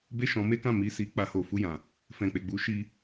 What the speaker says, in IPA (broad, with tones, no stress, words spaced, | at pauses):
be˦ʃɔ̃˧me˦kã˦˨ mi˧si˧k͡pa˧ ho˨fu˧jã˨ | fɛ̃˨k͡pe˨ɡ͡bu˨˦ ʃi˦